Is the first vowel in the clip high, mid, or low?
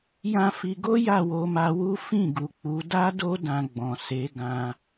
low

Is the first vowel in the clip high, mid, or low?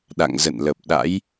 low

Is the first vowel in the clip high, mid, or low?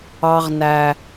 low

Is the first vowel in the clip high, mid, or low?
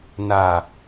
low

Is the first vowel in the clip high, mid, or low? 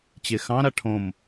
mid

